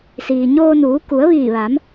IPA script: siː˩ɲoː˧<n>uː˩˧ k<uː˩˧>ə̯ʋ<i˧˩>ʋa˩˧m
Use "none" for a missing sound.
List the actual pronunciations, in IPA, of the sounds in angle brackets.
n, u˩˧, iː˧˩

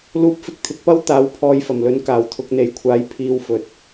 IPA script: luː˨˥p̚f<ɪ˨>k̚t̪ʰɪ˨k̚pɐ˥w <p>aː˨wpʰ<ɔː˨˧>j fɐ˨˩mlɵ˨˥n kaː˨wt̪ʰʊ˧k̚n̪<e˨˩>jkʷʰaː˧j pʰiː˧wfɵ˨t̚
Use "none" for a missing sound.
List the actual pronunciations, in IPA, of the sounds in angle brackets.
ɪ˨, t̪, ɔː˨˧, e˨˧

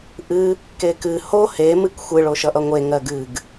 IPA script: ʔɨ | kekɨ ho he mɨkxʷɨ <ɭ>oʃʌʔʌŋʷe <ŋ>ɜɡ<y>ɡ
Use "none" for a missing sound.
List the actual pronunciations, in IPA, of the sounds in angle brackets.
ɭ, ŋ, ɨ

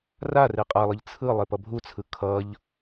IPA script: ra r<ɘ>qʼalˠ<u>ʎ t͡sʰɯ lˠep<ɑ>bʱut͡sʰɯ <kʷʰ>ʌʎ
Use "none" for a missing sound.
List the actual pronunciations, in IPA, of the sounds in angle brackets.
e, ɯ, ʌ, kʰ

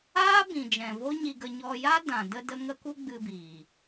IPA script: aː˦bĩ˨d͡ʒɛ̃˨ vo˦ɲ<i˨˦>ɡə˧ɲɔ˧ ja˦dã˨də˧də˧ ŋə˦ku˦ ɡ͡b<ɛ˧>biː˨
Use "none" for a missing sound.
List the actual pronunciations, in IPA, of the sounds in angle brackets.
i˧, ɨ˧

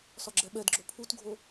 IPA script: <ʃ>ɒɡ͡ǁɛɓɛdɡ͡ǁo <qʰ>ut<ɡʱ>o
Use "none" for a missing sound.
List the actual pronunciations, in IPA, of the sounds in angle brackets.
s, pʰ, ɡʱ

